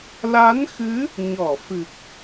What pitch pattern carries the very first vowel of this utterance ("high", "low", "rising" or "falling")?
rising